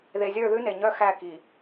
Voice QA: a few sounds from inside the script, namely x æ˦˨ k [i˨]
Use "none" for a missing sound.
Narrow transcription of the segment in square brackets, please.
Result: i˨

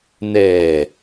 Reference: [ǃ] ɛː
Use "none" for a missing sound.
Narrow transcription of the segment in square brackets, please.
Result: n̪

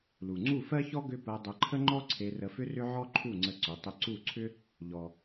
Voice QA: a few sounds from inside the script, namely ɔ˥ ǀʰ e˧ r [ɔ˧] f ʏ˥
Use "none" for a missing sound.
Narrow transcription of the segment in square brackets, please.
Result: ə˧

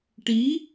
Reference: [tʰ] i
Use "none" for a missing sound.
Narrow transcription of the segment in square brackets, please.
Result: ʈ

